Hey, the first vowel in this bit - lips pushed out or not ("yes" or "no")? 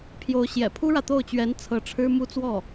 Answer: yes